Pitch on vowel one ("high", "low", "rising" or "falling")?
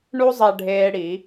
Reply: high